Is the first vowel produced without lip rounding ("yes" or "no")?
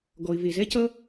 no